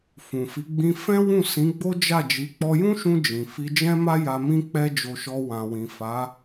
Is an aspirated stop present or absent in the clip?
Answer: absent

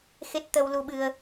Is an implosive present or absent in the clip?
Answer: present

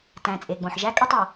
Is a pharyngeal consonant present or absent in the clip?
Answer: present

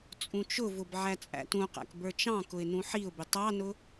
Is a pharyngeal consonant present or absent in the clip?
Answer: present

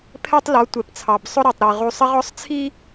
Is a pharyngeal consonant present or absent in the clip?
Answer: absent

